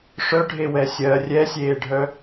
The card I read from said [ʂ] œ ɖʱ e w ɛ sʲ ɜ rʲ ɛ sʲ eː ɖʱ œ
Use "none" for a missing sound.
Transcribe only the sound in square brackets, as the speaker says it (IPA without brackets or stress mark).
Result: ʂ